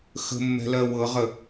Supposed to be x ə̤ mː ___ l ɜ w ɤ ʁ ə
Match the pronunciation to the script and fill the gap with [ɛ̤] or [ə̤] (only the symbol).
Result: ɛ̤